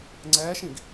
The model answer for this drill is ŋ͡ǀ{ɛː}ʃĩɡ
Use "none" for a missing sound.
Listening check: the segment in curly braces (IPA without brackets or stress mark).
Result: ɛː